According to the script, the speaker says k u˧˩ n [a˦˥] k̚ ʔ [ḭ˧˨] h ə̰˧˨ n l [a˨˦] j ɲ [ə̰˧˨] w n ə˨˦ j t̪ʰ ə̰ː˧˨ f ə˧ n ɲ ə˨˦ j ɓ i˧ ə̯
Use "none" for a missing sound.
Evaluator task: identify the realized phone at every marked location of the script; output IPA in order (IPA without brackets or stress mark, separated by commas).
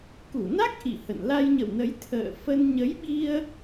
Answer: a˦˥, ḭ˧˨, a˧, ə̰˧˨